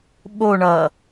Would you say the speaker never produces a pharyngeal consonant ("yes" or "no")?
yes